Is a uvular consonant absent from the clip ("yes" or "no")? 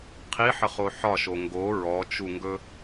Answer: no